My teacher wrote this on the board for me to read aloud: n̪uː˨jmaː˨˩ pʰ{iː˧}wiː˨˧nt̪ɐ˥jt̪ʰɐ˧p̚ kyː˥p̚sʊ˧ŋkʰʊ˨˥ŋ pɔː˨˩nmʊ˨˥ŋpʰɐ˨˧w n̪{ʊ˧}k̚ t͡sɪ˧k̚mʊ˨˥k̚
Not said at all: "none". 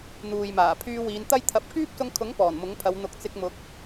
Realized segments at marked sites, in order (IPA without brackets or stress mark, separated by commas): yː˧, ʊ˨